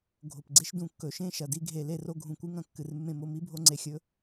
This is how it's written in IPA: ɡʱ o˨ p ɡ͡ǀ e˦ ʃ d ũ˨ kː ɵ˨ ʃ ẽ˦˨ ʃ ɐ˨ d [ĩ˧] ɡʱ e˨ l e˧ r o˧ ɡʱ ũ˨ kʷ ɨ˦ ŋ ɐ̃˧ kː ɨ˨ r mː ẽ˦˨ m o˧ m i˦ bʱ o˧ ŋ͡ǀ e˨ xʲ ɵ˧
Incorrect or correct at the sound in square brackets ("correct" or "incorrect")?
incorrect